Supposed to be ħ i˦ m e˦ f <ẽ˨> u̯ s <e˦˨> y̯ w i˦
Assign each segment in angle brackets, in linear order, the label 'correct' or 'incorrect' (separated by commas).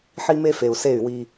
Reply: incorrect, correct